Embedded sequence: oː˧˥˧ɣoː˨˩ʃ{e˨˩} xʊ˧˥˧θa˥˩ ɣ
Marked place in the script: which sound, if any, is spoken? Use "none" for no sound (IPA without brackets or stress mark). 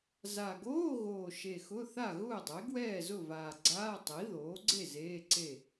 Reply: e˨˩